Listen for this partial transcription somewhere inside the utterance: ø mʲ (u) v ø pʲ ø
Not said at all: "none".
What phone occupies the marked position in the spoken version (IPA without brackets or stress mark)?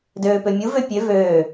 u